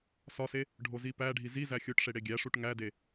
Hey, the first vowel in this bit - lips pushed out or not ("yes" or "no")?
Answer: yes